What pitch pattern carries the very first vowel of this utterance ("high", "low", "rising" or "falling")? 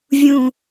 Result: low